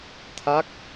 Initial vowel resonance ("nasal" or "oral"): oral